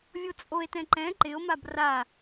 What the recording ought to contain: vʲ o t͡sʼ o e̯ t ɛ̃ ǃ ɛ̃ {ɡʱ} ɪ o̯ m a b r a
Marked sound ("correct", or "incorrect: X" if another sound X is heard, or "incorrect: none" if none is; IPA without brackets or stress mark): incorrect: ǃ